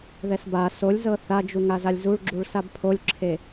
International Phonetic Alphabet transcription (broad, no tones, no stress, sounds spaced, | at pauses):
ð ɛ s b a s o lʲ z ɤ θ a d͡ʒ u ŋ a z a lʲ z u ɭ ɡ͡ǁ u ɭ s a b pʰ o lʲ ǁʰ e